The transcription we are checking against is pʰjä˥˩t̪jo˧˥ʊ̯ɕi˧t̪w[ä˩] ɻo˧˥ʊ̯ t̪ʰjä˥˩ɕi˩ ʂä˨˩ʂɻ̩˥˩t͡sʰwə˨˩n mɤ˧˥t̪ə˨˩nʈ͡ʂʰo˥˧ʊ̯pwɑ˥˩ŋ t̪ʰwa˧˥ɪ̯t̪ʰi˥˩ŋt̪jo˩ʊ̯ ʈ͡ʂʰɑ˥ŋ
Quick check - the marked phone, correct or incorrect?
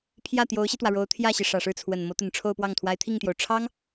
correct